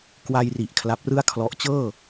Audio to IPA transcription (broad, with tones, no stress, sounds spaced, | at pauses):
k w a˧ j r i˨˩ ʔ kʰ l a˦˥ p̚ r ɯ˥˩ a̯ kʰ l ɔ˦˥ ʔ t͡ɕ ɤː˥˩